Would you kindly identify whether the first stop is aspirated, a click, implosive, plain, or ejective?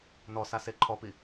click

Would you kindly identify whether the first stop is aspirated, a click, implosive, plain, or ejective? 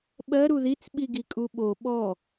implosive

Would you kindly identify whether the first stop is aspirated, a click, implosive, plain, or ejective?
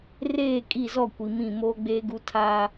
ejective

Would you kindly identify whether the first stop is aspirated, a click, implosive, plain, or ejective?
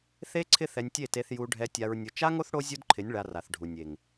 click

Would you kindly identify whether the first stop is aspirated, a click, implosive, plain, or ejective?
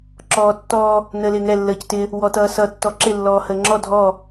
click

